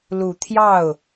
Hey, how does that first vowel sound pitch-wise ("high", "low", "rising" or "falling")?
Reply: low